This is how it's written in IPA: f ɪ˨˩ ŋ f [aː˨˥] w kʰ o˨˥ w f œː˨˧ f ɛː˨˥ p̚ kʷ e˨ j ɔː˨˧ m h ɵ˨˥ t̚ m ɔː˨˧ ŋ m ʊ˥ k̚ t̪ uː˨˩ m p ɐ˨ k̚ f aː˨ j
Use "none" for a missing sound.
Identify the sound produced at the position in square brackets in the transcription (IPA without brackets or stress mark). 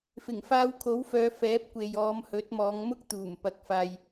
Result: aː˧